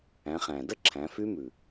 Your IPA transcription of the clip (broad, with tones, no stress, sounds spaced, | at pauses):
æ̃˩˧ χ æ̃˩ d ə˥ ǁʰ æ̃˩˧ f y˧˥ m ʉ˩